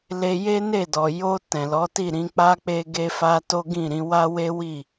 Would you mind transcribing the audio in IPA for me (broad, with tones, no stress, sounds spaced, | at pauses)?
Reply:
l e˧ j e˦ n e˦˨ d ɔ˨ j o˧ t ɛ̃˨ l ɔ˨˦ t i˦˨ ɾ ĩ˧ k͡p a˦ k͡p e˦ ɡ e˦ f a˦ t o˦ ɡ ĩ˦˨ ɾ ĩ˨˦ w a˦ w e˦ w i˦˨